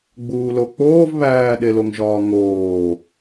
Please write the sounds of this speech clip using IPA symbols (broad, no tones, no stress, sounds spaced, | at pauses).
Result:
ɡ͡b uː l o k͡p oː v β æː ɗ e l o ŋ ʒ ɒː ŋ oː